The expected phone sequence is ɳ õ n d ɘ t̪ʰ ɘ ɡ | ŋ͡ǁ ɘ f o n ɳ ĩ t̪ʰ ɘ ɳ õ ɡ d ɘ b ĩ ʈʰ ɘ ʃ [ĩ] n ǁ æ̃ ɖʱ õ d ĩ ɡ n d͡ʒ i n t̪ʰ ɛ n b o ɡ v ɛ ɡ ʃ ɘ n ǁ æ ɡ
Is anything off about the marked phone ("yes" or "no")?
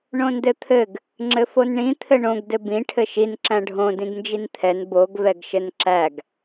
yes